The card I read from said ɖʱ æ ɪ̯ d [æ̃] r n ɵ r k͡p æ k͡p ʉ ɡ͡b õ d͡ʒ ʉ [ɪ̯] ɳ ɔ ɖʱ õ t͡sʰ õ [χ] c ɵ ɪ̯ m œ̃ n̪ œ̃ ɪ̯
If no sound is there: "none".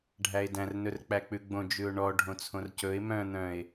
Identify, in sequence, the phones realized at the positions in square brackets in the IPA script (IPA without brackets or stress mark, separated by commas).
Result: æ̃, ʊ̯, r